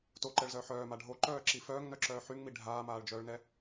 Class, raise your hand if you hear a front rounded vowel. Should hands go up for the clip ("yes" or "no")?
yes